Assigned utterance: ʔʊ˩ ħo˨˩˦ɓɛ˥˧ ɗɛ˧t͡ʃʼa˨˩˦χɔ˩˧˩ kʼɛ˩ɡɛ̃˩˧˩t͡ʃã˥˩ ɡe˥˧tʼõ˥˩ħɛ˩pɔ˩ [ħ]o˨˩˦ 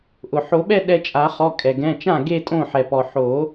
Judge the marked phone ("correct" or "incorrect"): correct